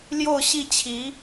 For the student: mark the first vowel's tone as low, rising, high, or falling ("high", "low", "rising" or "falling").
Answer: falling